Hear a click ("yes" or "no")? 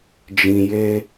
no